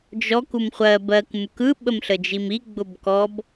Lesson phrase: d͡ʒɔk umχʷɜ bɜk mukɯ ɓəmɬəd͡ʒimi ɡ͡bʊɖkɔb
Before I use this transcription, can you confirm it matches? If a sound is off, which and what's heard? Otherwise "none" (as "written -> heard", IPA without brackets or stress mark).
ɖ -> b